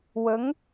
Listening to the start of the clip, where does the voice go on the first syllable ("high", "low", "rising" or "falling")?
rising